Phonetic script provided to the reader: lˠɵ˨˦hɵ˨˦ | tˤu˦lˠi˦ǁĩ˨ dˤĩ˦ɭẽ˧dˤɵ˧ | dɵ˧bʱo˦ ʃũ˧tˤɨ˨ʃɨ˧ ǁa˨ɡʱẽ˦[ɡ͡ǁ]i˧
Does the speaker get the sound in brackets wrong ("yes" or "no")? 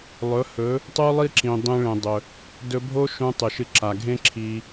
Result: yes